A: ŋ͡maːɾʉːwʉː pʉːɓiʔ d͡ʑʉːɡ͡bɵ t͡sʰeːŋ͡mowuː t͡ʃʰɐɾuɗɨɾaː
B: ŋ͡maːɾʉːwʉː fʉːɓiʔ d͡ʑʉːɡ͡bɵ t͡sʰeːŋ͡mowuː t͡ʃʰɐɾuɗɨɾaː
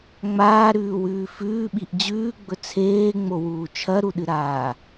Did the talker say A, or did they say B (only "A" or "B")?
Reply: B